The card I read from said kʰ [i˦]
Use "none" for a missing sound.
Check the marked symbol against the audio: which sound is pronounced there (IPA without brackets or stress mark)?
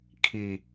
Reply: i˨